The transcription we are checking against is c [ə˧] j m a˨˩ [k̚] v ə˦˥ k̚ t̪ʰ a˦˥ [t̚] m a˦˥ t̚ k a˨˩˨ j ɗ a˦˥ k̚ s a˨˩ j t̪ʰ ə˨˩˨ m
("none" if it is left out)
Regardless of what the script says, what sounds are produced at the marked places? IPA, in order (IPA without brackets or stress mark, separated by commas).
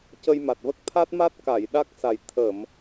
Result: ə˧, t̚, t̚